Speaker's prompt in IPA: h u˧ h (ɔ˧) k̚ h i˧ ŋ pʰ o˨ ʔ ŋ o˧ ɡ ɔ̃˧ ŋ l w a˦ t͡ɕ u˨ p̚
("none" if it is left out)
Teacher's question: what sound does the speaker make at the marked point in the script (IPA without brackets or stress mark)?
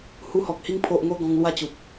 ɔ˨